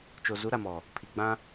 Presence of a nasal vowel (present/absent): present